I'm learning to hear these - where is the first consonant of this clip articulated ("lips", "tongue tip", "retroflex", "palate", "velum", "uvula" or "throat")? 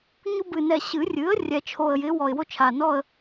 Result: palate